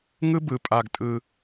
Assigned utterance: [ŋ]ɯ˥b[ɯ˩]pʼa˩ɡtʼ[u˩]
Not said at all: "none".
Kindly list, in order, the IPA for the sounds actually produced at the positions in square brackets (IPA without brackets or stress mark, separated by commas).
ŋ, ɯ˩, ɯ˩